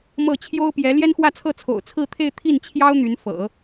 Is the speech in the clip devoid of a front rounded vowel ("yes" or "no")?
no